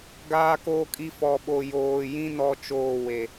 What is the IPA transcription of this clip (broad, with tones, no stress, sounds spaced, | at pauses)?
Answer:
ɡ aː˦ k oː˦ kʼ i˦ f ɔ˨ ɓ o˨ j oː˨ j ĩ˦ n ɔ˦ t͡ʃ oː˦˨ w e˨